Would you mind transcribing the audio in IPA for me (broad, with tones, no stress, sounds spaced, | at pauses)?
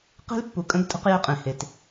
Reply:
q e̤˦ l pː u˨ kʼ ə̃˦ ɡ tʼ ə̤˦ q j e˦ qʼ ẽ˨ h e˨ t